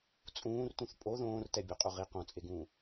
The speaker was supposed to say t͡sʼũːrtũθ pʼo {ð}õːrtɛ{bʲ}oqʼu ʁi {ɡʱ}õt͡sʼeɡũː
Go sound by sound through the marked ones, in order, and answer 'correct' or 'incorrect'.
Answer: correct, correct, incorrect: q

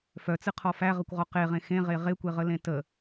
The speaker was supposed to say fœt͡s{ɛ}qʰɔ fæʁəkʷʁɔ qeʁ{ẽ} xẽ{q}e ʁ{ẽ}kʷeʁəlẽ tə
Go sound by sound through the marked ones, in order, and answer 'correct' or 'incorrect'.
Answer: incorrect: ɨ, correct, incorrect: ʁ, incorrect: e

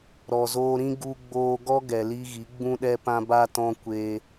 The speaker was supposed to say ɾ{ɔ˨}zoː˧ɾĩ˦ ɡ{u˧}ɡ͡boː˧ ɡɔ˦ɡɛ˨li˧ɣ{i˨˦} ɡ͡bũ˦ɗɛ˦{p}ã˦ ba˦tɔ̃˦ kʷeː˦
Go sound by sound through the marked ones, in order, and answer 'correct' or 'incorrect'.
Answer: correct, correct, correct, correct

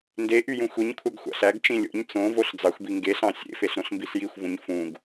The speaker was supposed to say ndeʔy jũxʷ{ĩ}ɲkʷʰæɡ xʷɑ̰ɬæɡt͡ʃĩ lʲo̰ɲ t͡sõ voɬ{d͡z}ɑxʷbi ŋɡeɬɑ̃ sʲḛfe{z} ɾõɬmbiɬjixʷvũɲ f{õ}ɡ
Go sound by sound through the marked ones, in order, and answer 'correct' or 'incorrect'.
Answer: incorrect: i, correct, incorrect: ɬ, incorrect: ũ

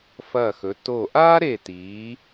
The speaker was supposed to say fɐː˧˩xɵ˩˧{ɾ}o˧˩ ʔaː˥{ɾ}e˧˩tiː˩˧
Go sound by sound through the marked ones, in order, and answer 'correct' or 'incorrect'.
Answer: incorrect: t, correct

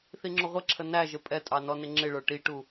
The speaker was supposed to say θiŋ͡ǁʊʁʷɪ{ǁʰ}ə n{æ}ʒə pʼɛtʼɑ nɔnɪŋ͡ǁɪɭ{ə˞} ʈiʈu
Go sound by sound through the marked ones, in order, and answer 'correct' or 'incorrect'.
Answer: correct, correct, correct

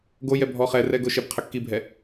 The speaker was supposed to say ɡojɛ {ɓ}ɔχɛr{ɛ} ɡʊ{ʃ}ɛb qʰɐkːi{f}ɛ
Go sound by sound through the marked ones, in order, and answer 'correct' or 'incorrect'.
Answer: incorrect: bʱ, correct, correct, incorrect: bʱ

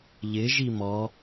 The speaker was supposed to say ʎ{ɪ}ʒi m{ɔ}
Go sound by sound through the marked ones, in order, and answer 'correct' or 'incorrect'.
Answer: correct, correct

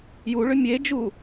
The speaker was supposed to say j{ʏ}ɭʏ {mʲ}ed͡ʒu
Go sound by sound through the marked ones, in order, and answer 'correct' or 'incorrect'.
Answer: incorrect: u, correct

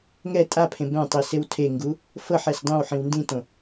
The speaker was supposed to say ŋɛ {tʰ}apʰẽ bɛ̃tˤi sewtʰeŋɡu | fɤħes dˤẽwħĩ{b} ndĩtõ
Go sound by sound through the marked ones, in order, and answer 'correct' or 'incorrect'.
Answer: incorrect: tʼ, incorrect: w

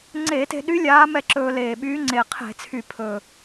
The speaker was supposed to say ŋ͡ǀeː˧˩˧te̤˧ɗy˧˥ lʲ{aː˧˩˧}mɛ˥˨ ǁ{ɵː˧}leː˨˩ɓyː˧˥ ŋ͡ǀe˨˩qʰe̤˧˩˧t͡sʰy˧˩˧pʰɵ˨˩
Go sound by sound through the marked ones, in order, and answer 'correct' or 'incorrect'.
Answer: incorrect: aː˧˥, correct

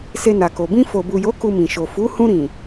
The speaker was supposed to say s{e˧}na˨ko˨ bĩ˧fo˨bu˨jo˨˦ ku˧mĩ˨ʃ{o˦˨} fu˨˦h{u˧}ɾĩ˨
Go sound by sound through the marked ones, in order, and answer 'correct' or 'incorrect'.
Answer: correct, incorrect: o˨, incorrect: ũ˧

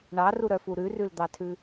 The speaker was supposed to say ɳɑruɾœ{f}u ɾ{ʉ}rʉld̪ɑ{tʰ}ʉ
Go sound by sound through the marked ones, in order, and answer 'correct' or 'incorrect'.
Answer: correct, correct, correct

